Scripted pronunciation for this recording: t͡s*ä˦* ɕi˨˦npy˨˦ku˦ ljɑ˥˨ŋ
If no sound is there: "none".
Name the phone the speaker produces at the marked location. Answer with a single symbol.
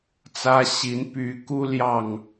ä˦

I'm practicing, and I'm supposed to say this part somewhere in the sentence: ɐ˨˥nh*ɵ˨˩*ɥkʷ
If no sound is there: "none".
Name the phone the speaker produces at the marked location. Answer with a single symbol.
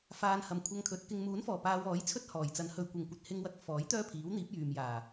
ɵ˨˧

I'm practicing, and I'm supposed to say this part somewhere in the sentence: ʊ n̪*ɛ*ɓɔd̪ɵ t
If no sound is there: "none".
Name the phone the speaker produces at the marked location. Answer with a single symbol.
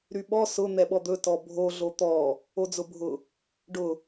ɛ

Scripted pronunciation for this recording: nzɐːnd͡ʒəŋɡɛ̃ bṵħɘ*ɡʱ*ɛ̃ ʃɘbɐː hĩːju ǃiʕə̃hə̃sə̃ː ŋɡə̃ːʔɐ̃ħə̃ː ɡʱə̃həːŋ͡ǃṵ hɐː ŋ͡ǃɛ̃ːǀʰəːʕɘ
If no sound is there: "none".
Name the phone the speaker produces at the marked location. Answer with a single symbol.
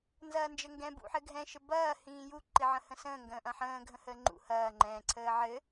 ɡʱ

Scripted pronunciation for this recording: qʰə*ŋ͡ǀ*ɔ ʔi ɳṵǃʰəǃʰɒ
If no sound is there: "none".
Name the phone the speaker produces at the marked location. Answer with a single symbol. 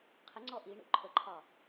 ŋ͡ǀ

